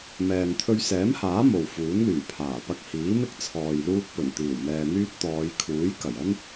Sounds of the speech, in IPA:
mɛː˨ŋ t̪ʰɵ˧ɥ sɛː˨˥mhaː˨˥ mo˨w fuː˨˥nlyː˨˩ pʰaː˨˩pɐ˧k̚hiː˨˥mɪ˥k̚ t͡sʰɔː˨jluː˧k̚ pɵ˨˩n t̪iː˨˩wmɛː˨n̪yː˧t̚ t̪ɔː˨˧j kʰuː˨˥j kɐ˨˩jɐ˥n

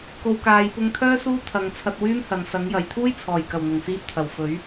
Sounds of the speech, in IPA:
ko˨˧wkaː˨˧j pʊ˧ŋt̪ʰœː˥ suː˥t̪ʰɐ˨˧ŋt͡sʰɐ˧t̚ wyː˥m hɐ˨nsɐ˨˥ŋ jɐ˨j t̪ʰuː˥jt͡sʰɔː˨˩jkɐ˨˩w n̪ʊ˨˩ŋsiː˧t̚t̪ʰɐ˨˩w fɵ˨˥ɥ

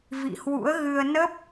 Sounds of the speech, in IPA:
vḭ˧˨hwṵ˧˥ə̯ɣɨ˧ə̯ nə˦˥p̚

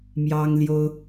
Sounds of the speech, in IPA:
mjɑ˥ŋljo˥ʊ̯

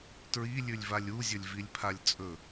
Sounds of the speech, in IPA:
tɹilʲʉlʲvalʲ uzʲɵlʲvilʲpʰalʲ t͡sʼɵ

